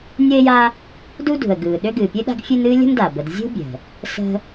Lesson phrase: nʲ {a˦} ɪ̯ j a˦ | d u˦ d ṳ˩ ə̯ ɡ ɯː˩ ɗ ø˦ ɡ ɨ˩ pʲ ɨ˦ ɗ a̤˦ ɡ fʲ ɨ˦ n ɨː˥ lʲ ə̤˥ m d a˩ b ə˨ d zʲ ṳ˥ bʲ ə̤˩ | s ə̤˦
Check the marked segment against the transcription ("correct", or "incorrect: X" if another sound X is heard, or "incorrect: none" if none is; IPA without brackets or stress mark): incorrect: ə˦